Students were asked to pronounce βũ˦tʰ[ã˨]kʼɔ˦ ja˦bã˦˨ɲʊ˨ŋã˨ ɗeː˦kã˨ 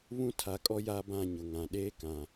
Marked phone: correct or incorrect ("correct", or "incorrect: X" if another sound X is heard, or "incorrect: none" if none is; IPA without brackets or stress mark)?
incorrect: a˨